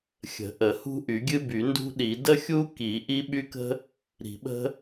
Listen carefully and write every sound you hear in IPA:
xʲ ə̤˨˩˦ ʔ ə˨˩˦ h ṳ˥ ʔ y˨˩˦ ɡʲ ɨ˥ b y˨˩˦ n d ṳ˥ ɗ i˨˩˦ d ə˥ xʲ u˥ k i˨˩˦ ʔ i˥ ɓ y˥ k ə̤˥ | ɾ i̤˨˩˦ ɓ ə̤˥

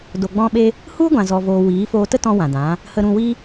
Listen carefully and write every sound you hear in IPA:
d o˧ ɡ͡b ɔ̃˦ ɓ e˦ | h u˦ ɡʷ ã˧ z ɔ˧ v oː˧ w iː˨˦ f oː˧ t ə˦ t ɔ̃˧ w ã˨ d ã˨˦ | h ə˧ ɾ ũ˧ w i˦

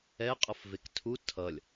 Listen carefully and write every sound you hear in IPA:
ɛ qʼ ʌ f v e k tʰ u tʰ ʌ lʲ

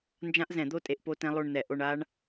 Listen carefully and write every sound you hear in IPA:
n d͡ʒ ã˦˥ ʔ z ɛ̃˧˩˧ d̪ o˥˧ tʼ e˧ ʔ p o˦˥ t ɛ̃˦˥ lˠ o˥˧ ɳ n̪ ɛ˧˩˧ ʔ o˧ ɳ a˦˥ ɳ

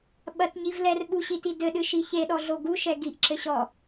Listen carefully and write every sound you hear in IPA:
ɓ ɐ t ɲ i v l ɛ r ɓ u ɕ i t i d ɘ ɗ ɨ ʃ i ç e ɗ ɔ ɮ o ɡ u ʃ ɛ ɡ i ʔ ǁ ɘ ɕ ɔ

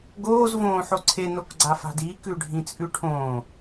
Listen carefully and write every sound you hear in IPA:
ɡ oː z v õː ħ o ǀʰ e n o k ɡ͡ǀ a f a̤ d iː k ʉ ɖʱ ĩ t͡sʼ ʉ ʈʰ õː

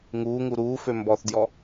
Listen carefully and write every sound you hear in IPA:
ŋ uː ŋ u ɾ uː f ø m b ɔ θ d j ɔ

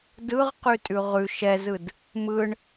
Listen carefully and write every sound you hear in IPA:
d ɯ ʁ q ʉ tʼ ʉ ʁ ʉ ʃ ɛ z ɯ d | m ɯ ɳ

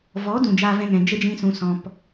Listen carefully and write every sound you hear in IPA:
v ɔ˨˦ d ũ˨ d͡ʒ aː˧ v ɛ̃˧ ŋ ɛ̃˨ d͡ʒ ə˦ d͡ʒ ĩ˧ s ũ˨ s ɔ̃˨ p

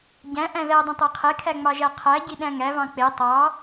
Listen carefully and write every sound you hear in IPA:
ɟ æ̃ ʔ æ̃ ð æ dˤ ɑ̃ tˤ æ qʰ e kʰ æ ŋ͡m ɑ ʒ æ qʰ æ ɟ i ɗ æ̃ ŋ æ v ɑ̃ k͡p e tˤ ɑ

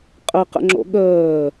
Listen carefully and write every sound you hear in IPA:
qʼ ə q ə̰ ŋ͡ǁ o̰ ɠ əː

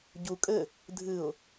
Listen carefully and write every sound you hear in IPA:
ɟ u kʼ ɘ | dʱ ɨ ʊ̯

